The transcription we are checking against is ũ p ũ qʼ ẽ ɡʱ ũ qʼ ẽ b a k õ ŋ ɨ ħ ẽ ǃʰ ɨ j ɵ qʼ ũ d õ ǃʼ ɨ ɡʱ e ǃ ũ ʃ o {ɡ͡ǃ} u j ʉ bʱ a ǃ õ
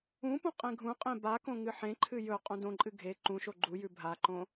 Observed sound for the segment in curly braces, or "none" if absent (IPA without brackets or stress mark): ɡ͡ǃ